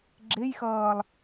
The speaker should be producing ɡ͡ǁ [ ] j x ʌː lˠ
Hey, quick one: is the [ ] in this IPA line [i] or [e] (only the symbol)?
e